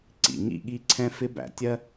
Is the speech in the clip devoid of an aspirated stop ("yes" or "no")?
no